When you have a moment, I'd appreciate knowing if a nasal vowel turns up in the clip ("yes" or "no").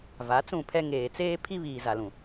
yes